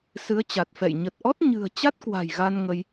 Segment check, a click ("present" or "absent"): absent